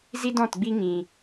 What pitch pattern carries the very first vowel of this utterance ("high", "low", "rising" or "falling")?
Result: high